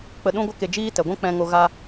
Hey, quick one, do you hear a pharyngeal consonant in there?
no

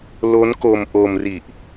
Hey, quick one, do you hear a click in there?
no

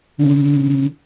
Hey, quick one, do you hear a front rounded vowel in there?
yes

